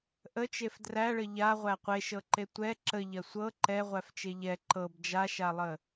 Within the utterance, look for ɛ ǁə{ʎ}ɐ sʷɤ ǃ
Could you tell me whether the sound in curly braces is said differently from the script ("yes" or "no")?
no